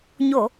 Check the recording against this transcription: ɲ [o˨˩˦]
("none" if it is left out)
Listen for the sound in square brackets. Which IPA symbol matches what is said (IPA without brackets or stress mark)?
o˨˩˨